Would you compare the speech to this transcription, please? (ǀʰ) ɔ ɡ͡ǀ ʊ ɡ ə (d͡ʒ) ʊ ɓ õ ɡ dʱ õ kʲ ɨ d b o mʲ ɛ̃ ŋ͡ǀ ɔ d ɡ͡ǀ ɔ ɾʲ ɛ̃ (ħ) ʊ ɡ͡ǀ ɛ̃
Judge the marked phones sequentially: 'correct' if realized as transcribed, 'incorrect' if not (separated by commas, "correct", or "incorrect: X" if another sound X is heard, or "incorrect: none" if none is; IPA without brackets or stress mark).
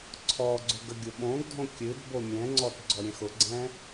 correct, incorrect: ɡʲ, incorrect: x